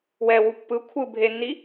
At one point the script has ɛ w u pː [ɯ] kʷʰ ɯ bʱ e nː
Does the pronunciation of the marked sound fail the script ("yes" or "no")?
no